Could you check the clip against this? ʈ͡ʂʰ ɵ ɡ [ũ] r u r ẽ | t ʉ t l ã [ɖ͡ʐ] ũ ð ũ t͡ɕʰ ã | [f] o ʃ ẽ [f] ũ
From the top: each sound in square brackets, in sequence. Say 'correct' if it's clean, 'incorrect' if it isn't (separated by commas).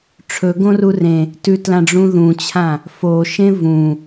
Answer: incorrect, correct, correct, incorrect